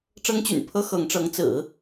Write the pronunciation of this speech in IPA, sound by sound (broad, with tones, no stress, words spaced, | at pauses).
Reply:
ʈ͡ʂɤ˥ŋt͡ɕy̰˨˩npʰɤ˥ xɤ˧˥ŋʈ͡ʂɤ˧˥ŋ t͡sɹ̩˨˩˦